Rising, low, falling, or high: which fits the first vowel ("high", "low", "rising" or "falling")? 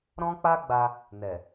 high